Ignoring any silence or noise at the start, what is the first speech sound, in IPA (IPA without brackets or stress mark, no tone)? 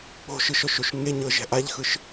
k͡p